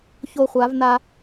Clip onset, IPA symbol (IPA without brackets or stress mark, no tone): ç